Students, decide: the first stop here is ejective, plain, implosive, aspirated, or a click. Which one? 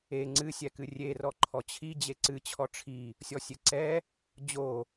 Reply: click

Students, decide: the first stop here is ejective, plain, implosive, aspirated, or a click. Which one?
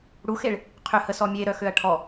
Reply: aspirated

